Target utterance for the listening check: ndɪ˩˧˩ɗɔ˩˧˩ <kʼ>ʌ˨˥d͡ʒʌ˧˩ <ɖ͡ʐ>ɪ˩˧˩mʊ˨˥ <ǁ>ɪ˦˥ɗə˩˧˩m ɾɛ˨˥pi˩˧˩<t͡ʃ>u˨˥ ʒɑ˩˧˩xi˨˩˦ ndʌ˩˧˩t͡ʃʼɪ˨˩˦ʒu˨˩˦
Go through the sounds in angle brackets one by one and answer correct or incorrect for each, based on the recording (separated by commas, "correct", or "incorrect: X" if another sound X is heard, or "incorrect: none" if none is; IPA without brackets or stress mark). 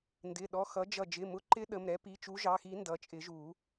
incorrect: x, incorrect: d͡ʒ, incorrect: ǃ, correct